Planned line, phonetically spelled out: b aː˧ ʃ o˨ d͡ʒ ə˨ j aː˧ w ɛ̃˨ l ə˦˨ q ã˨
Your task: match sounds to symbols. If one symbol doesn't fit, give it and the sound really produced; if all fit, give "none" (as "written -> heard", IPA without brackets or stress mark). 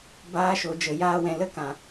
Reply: q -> k